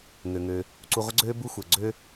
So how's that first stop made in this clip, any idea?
click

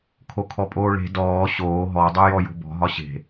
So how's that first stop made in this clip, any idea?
aspirated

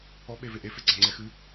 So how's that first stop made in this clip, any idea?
implosive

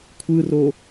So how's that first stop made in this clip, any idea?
aspirated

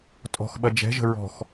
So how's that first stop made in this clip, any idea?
ejective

